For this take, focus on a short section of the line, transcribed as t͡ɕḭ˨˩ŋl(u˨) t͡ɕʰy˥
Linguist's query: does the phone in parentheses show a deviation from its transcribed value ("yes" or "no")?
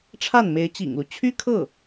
yes